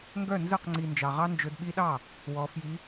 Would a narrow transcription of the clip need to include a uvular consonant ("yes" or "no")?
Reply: yes